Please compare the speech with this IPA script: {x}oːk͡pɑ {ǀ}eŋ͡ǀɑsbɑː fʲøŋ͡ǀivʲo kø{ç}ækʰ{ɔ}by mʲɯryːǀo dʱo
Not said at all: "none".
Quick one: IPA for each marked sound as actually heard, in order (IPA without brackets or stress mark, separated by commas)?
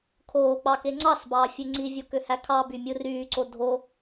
kʰ, k, h, ɑ